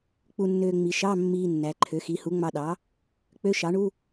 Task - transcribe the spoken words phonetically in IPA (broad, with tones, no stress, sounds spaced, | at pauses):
k͡p u˧ nː øː˧ ŋ͡m i˩˧ ʃ ɑ˧˥˧ mː iː˧ nː æ˩˧ ǃʰ ø˩˥ x i˩˥ h u˩˥ ŋ͡m ɑ˧ ɗ ɑ˩˥ | k͡p ø˧˥˧ ʃ ɑ˩˥ ɳ u˧˥˧